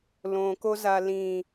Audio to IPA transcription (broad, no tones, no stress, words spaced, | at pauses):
lõkoza lĩ